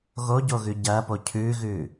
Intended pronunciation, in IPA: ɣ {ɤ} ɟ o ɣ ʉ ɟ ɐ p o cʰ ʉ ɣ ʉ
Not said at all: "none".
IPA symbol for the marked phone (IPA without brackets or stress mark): o